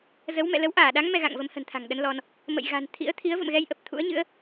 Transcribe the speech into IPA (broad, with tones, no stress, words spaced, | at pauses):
zə˨˦wmɛ̰˧˨ lə˨˦wʔaː˧˩ɗa˨˦ŋ mɛ˧ɣa̰˧˨ŋvə˨˦mhə̤˨˩n t̪ʰa̤˨˩ŋɗə˨˦n lɔ˧n | mə̰˧˨j ɣa̤˨˩nt̪ʰḭ˧˥ə̯ t̪ʰi˨˦ə̯və̰˧˨mɣɛ˧jʔə˨˩p̚ t̪ʰṵ˧˥ə̯ɲɨ̰˧˥ə̯